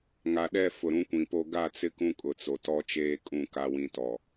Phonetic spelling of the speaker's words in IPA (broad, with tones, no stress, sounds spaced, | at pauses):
ŋ a˨ ɗ ɛ˦˨ f ʊ˨ ɾ ũ˦ kʷ ĩ˨ p o˦ ɡ a˦˨ t͡s ɪ˦ k ũ˦ kʼ ʊ˨ t͡s o˨ t ɔ˦ t͡ʃ eː˦ kʼ ũ˦˨ k a˦ w ĩ˦ t ɔ˨